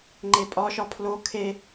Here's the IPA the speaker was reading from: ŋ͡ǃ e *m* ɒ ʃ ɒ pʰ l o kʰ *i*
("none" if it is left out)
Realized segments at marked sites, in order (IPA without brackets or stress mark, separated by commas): pʼ, e